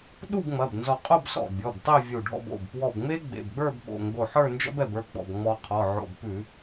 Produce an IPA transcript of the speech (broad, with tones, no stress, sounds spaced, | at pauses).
ɗ u˥˧ b ŋ͡m ɐ˩˧˩ b n z ɔ˧˩ qʼ o˥˧ b s ɔ̰˧˩ bʲ ɔ˩˧˩ b tˤ e˥˧ vʲ u˧˩ ɖʱ ɔ̰˥˧ b o̰˩˧˩ b p w ɔ˧˩ b ŋ͡m e˥ ɡ͡b ḛ˩˧˩ b ɡ͡b ə˞˥˧ b ɓ o̰˩˧˩ ŋ ɡ o˧˩ ħ ə˞˥˧ n d͡ʒ ɔ̰˥ b ɛ˧˩ b ə˞˥˧ ɡ͡b ɔ̰˧˩ b ŋ͡m ɔ˧ qʰ ɔ˩˧˩ ʕ o̰˧˩ b p ʉ˧˩˧